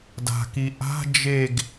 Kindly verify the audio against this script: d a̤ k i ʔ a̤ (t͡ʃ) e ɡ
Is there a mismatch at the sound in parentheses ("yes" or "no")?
yes